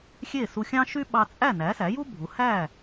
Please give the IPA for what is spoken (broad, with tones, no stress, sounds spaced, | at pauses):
xʲ e˥˩ s u˧ xʲ ɑ̃˥ ʃ y˥ ɓ ɑ˧ t͡sʼ æ˥˩ n æ˩˥ s æ˩˥ j u˥ bʱ u˩˥ h æ˥˩